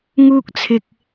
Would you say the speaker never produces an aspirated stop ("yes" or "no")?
no